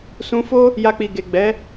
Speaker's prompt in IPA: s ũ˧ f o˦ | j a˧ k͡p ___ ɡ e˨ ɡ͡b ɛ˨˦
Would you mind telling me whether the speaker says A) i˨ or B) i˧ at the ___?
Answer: A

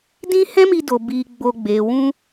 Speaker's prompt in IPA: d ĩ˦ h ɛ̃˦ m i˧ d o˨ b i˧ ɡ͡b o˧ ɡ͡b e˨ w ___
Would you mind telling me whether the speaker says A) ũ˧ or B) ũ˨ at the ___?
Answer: A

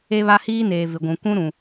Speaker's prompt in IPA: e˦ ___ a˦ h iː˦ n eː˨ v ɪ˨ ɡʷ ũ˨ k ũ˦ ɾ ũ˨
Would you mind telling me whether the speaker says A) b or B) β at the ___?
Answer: B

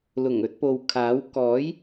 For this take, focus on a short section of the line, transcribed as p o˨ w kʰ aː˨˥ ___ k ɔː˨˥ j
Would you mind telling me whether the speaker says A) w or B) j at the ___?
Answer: A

